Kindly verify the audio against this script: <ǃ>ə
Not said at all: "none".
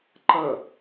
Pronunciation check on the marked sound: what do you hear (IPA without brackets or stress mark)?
ǃ